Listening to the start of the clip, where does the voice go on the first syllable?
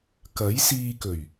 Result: rising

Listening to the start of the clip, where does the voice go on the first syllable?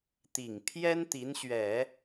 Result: low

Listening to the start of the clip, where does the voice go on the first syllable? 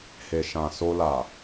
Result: low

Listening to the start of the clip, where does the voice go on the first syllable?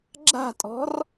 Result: falling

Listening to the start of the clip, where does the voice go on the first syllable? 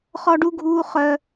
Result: high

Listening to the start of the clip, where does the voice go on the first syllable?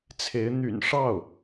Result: rising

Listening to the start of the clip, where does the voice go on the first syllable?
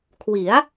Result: rising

